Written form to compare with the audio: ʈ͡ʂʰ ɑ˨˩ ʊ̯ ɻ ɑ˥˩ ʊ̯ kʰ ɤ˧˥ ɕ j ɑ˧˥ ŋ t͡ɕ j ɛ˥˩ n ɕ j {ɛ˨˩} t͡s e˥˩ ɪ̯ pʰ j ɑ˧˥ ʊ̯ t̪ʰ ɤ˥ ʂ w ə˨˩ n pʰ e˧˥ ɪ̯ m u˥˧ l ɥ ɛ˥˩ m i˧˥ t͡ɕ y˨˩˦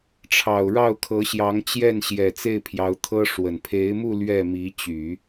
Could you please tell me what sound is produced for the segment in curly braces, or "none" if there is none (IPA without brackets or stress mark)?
ɛ˨˩